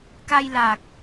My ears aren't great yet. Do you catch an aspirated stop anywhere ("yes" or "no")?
no